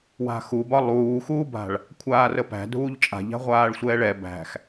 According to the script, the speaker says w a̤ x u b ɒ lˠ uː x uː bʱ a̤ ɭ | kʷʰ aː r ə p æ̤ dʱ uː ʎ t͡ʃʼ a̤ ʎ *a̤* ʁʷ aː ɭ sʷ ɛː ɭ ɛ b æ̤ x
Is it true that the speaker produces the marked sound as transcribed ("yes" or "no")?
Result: yes